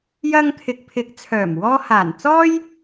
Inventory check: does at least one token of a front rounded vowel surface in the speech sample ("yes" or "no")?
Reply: yes